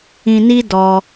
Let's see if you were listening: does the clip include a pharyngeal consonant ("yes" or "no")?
no